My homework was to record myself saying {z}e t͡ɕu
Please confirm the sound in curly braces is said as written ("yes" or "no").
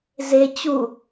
yes